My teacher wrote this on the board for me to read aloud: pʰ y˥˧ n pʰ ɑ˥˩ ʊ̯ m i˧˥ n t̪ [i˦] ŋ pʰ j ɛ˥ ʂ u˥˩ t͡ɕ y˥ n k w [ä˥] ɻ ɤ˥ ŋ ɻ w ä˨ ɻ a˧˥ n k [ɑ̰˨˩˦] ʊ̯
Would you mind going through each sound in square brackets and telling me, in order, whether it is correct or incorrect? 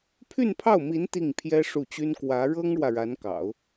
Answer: incorrect, incorrect, correct

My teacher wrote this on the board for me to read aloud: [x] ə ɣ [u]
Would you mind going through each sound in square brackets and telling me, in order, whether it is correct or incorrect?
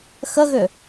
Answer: correct, incorrect

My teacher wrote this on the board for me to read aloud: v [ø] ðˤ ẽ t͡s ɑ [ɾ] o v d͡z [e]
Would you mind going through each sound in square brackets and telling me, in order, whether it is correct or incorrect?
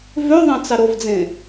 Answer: correct, correct, incorrect

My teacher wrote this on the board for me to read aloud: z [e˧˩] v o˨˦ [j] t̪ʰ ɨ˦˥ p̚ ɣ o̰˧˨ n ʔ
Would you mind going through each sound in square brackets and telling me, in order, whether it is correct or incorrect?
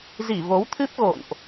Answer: incorrect, incorrect

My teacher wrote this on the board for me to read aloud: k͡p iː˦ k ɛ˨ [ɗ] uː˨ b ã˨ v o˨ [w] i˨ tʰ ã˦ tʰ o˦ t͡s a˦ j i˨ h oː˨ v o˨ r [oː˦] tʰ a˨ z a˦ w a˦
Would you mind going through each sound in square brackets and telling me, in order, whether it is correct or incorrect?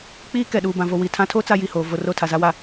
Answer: correct, correct, incorrect

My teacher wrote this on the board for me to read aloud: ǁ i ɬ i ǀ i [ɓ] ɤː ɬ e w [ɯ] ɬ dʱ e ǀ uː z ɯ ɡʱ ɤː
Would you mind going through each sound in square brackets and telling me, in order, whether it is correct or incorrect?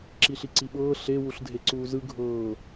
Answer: correct, incorrect

